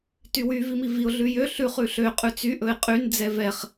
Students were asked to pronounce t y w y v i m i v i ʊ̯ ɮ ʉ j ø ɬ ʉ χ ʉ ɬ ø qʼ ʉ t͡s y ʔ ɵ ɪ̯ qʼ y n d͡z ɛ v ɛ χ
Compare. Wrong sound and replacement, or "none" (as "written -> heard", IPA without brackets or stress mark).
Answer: none